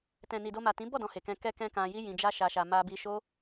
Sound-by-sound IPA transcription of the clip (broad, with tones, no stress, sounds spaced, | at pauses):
t ɛ̃˨ n i˨ d o˧ m a˨ t ĩ˨˦ b ɔ˦˨ d ɔ̃˧ h e˨ k ɛ̃˧ k ɛ˧ k ɛ̃˧ k ã˧ j i˦ j ĩ˧ d͡ʒ a˦ ʃ a˧ ʃ a˧ m a˧ b i˧ ʃ o˦